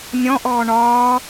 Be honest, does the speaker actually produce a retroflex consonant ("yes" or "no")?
yes